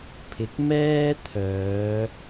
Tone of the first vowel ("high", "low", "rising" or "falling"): rising